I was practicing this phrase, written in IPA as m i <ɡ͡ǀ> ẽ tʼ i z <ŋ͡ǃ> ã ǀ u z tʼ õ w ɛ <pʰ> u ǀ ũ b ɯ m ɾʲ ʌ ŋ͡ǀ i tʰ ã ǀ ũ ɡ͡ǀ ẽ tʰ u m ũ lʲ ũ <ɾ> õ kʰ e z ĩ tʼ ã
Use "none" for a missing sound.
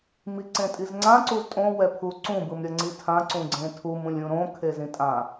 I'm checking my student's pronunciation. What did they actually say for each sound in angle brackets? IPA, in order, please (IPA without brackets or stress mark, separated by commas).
ǀ, ŋ͡ǀ, pʰ, ɾ